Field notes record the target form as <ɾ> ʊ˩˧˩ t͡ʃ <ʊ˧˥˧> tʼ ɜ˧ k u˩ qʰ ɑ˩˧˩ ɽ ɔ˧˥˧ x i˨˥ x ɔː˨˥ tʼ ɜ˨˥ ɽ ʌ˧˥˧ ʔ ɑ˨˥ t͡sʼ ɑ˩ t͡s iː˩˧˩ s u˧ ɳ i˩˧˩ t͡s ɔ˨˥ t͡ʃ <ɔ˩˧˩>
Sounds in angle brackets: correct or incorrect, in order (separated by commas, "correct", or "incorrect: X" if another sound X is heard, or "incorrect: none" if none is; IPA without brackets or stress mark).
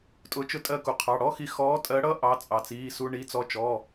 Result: incorrect: tʼ, incorrect: ʊ˧, correct